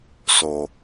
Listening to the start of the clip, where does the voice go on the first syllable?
low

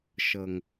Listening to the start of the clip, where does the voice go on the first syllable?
low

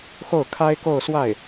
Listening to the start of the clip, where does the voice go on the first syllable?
falling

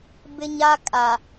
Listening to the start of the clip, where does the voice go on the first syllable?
high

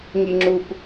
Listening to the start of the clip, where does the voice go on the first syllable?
low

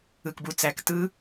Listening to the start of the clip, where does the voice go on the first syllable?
low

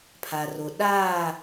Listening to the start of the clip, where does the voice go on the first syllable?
low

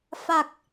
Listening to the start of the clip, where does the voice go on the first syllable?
low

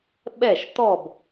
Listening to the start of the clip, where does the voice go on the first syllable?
falling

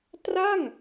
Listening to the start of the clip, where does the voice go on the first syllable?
falling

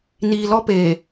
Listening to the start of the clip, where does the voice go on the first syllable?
low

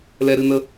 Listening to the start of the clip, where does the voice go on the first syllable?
high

